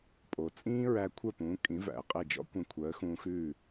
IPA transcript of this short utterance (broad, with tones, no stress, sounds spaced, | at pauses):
pʼ o˩ t͡sʼ ĩː˥ ɹ æ˧ kʷʰ œ˥˩ p ũː˩˥ kʼ ĩ˩˥ v æ̰˩ ə̯ qʼ e˥˩ d͡ʒ ɔ̰˥ kʷ ẽ˧ kʷʰ œ˩˥ ə̯ x ũː˧ x ʉː˥˩